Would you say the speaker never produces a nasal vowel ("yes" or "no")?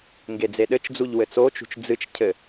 yes